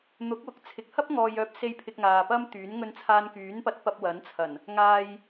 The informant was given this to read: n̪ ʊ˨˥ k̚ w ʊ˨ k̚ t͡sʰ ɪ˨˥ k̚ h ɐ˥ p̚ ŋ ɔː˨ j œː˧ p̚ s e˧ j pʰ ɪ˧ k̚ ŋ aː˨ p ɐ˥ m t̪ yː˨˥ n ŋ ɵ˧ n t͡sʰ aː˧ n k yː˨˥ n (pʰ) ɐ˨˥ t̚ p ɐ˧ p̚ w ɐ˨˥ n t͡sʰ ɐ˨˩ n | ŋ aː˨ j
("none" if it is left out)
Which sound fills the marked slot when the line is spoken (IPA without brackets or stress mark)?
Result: p